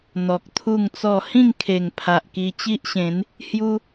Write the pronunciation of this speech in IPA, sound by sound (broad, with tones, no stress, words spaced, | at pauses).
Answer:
n̪ɔ˨k̚t̪ʰu˥˧ŋt͡sɔ˥˧ hĩ˥˧ŋkʰe˨˩ŋ pʰa˨ʔki˧ t͡ɕi˦ʔɕẽ˨˦n | hju˦